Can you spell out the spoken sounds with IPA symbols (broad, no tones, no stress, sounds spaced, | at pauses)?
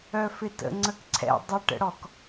œ f ɪ t ə̰ ŋ͡ǀ ə k ǀʰ ɛ̰ dˤ ɪ ʈ ə̰ ɽ ɔ k